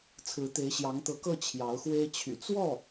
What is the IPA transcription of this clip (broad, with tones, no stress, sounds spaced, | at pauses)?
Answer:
t͡sʰ ɹ̩˧˥ t̪ e˧˥ ɪ̯ ɕ j ɑ˧˥ ŋ t̪ ɤ˧˥ k ɤ˥˩ t͡ɕʰ j ɑ˧˥ ʊ̯ x w e˥ ɪ̯ t͡ɕʰ y̰˨˩ t͡s w ɔ˥˩